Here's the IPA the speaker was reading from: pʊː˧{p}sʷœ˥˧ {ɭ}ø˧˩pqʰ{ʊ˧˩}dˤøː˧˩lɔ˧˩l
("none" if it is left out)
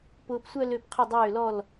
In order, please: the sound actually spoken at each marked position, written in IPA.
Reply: p, l, ʊ˧˩

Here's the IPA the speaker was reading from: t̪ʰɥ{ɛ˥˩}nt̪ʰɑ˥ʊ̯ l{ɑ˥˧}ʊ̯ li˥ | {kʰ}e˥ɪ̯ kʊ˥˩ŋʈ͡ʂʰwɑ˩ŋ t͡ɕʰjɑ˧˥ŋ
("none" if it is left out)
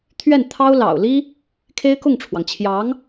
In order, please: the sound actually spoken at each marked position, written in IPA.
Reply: ɛ˥˩, ɑ̰˨˩, kʰ

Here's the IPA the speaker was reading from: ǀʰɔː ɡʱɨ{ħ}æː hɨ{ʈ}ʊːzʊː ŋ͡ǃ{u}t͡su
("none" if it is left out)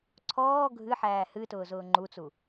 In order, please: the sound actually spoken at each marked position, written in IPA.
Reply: ħ, t, u

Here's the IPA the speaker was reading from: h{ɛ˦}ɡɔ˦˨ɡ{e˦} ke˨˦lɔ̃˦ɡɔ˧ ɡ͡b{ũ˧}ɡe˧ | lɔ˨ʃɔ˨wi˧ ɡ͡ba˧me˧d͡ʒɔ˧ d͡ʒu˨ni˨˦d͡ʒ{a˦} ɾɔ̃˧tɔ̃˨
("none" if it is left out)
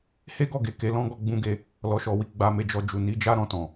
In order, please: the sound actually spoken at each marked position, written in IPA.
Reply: e˦, e˨, ũ˧, a˦

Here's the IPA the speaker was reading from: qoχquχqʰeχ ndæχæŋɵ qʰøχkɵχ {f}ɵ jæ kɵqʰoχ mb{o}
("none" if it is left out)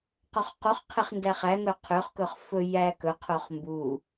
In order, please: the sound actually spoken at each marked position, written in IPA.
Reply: f, u

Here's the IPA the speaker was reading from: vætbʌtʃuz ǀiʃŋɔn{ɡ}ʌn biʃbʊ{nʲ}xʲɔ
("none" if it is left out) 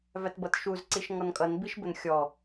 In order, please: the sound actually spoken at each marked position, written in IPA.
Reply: kʼ, n

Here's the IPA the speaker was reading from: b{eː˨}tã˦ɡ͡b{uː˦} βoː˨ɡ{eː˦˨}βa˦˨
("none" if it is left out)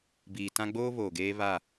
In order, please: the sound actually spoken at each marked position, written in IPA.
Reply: iː˨, oː˦, eː˦

